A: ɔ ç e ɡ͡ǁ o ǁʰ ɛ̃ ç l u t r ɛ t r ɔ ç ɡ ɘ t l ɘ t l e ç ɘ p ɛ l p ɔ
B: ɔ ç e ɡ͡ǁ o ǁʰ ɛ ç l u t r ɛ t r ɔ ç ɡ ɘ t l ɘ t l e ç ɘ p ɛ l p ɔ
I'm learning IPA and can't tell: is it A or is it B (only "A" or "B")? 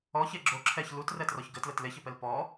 B